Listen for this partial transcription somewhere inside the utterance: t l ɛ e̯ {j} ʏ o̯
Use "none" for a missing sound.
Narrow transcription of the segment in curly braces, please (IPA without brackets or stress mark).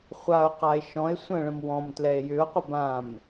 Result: j